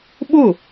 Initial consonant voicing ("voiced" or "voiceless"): voiced